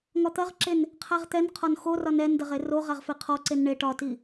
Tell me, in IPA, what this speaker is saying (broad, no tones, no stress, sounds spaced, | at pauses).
ŋ ɒ t̪ ɐ ʁ ǁ e n | qʰ a ʁ t̪ ɛ n qʰ ɒ n x o r ɒ n ɛ n d ɐ ʁ e r o ʁ a ʁ f e qʰ ɔ ǀ e n ɳ e ʈ ɒ t i